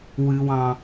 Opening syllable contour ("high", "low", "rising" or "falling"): high